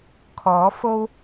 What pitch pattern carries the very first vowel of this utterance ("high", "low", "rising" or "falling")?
rising